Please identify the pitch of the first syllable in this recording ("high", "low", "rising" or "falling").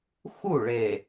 falling